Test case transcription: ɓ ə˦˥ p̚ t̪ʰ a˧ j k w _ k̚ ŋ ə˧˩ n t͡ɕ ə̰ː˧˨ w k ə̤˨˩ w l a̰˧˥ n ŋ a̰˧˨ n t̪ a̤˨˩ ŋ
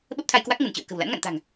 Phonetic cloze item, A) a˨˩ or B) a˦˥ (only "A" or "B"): B